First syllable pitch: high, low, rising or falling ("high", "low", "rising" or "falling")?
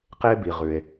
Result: high